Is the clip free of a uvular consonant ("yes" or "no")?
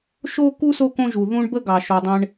yes